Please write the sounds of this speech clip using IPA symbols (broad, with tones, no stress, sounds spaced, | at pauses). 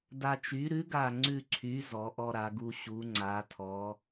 d a˧ t͡ʃ y˨˥ ɾ ʉ˨˥ ɡ a˧˩ ŋ͡ǀ ʉ˧˩ ǀʰ y˨˥ z ɔ˩˧ ʔ ɔ˧ ɾ a˩˧ ɡ u˧ ɕ u˩˧ ŋ͡ǀ a˩˧ tʰ ɔ˩˧